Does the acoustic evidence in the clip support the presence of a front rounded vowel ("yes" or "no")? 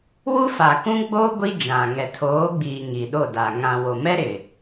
no